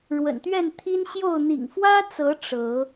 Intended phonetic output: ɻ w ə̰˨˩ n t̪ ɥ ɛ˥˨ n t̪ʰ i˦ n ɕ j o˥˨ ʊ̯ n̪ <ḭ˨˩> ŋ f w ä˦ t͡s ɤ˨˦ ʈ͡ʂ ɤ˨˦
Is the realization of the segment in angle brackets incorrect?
no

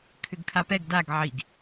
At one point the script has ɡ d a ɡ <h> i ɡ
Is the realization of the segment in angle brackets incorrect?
yes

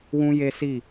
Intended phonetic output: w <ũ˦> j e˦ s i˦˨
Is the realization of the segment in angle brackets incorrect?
no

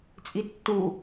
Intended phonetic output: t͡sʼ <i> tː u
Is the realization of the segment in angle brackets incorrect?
no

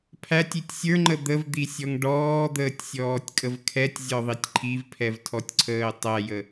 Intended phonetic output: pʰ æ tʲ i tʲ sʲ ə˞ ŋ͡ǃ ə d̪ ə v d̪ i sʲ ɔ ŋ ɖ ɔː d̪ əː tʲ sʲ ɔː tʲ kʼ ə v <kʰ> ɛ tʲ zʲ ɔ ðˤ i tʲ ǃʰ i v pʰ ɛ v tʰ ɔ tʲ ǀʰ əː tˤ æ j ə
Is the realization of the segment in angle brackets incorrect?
no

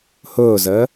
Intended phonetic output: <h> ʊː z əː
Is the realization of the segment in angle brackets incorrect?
no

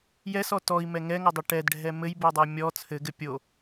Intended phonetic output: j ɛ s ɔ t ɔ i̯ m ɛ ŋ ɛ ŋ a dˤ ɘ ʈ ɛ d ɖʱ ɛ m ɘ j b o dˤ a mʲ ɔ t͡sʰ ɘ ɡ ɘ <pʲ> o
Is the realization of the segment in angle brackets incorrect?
no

